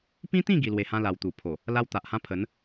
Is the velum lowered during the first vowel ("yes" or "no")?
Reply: yes